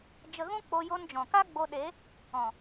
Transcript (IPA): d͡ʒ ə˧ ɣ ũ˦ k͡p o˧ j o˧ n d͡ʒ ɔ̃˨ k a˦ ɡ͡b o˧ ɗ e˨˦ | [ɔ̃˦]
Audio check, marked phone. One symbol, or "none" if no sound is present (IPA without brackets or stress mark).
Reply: ɔ̃˨